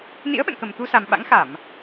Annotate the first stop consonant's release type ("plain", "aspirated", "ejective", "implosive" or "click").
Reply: implosive